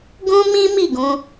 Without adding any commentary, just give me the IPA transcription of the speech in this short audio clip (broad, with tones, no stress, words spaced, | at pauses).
ɡũ˦mĩ˦ mi˦˨ɡũ˧